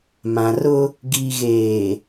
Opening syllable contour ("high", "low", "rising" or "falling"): low